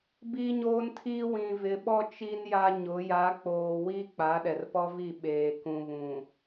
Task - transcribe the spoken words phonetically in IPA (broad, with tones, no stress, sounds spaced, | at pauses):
b iː˦ ɲ oː˦ n tʰ iː˦ w ĩ˨ v ɪ˨ ɓ ɔ˦ t͡ʃ i˦ n j a˦ ɲ ʊ˨˦ j a˨˦ k͡p oː˨ w i˦ k͡p a˨˦ ɗ ɛ˨ r p ɔ˦ v i˦˨ ɓ eː˨ k ũ˨ β ũ˨